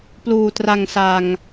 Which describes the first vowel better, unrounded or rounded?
rounded